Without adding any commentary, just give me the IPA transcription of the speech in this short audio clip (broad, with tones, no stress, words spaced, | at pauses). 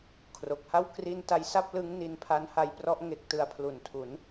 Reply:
kʰro˨˩k̚ha˥˩w kri˥˩n ta˦˥jsa˥˩p̚lɯ˦˥ŋni˧n pʰa˦˥nha˦˥jprɔ˦˥ʔ ŋe˦˥k̚ tɯ˧a̯pʰlu˨˩ntʰu˩˦n